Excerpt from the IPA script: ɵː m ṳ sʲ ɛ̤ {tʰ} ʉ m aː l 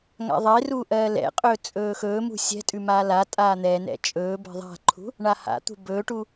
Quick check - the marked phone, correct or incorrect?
incorrect: tʼ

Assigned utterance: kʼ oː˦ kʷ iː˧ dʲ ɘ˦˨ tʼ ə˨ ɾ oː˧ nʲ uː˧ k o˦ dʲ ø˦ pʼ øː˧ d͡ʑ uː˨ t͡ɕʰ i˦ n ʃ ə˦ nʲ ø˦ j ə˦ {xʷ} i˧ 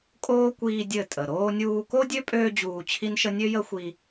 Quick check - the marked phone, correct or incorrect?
correct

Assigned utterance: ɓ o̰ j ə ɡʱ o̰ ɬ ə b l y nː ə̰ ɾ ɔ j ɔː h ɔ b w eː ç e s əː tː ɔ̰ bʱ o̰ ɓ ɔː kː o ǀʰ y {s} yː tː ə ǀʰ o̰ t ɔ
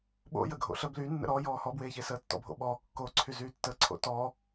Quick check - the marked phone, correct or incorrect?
incorrect: z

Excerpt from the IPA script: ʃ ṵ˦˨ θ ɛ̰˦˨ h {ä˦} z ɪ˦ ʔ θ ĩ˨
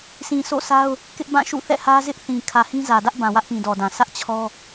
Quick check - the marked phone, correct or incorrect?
correct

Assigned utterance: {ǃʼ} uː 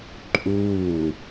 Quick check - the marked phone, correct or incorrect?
correct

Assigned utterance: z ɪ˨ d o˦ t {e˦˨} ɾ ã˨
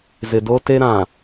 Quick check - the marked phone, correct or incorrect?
incorrect: e˦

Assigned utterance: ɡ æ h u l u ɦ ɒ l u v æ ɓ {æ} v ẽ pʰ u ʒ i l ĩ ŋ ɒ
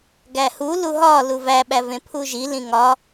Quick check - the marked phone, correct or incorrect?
correct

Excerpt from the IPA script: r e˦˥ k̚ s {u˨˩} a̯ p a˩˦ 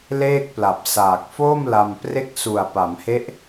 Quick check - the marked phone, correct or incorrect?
correct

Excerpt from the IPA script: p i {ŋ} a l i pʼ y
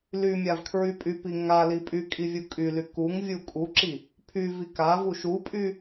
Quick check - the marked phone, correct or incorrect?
correct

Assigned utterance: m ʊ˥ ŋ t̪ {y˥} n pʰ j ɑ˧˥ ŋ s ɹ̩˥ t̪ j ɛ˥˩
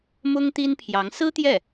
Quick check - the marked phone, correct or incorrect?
incorrect: i˥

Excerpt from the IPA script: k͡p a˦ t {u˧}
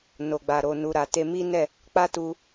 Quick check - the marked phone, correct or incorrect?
correct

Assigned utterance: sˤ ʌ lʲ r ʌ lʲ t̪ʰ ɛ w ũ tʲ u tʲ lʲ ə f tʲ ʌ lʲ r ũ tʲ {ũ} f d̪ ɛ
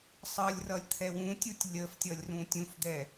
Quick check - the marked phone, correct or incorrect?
correct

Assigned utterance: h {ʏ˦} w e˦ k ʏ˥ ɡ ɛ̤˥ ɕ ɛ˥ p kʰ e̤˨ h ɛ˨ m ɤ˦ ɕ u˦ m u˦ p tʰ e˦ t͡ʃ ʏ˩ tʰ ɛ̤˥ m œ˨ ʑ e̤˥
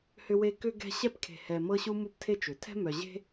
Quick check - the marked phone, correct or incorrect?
correct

